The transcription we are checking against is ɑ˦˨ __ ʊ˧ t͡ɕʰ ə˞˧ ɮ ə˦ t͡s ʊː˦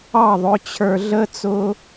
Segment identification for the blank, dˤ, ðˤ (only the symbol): ðˤ